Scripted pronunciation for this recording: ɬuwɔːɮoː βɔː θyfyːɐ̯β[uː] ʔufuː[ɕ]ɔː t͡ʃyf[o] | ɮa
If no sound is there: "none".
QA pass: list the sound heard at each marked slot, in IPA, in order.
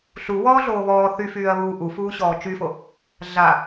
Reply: uː, ɕ, o

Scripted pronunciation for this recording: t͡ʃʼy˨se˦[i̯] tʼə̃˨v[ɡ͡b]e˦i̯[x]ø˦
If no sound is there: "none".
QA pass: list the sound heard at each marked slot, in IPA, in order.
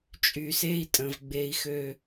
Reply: i̯, ɡ͡b, x

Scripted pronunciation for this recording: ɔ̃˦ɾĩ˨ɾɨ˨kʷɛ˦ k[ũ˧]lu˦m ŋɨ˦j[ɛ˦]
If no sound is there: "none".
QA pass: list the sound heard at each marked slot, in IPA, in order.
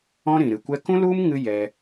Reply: ũ˦, ɛ˧

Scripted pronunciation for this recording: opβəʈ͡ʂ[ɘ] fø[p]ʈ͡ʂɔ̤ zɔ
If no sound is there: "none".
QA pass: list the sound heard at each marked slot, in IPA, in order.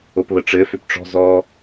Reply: ɘ, p

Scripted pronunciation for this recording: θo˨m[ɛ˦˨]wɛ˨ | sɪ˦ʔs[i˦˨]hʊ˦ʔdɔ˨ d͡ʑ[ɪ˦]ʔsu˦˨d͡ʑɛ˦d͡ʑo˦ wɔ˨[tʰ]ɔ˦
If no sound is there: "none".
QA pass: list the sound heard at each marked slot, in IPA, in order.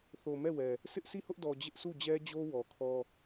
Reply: ɛ˦˨, i˦˨, ɪ˦, kʰ

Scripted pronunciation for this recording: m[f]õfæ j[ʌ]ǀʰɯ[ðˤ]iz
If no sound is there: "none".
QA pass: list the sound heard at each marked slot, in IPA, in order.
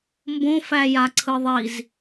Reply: b, a, ðˤ

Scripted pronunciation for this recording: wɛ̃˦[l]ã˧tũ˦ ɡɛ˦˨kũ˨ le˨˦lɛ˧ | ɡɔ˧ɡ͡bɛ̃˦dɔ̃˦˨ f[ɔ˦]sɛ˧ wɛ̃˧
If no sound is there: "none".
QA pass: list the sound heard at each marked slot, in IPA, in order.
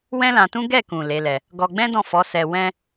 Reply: l, ɔ˨˦

